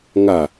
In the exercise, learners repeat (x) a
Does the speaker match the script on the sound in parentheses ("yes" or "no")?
no